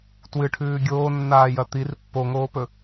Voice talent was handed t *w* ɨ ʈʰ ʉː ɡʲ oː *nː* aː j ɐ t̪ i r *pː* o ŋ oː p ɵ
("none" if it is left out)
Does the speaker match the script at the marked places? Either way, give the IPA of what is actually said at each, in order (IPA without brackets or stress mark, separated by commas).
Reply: w, nː, pː